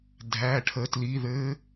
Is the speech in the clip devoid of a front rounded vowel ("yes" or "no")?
yes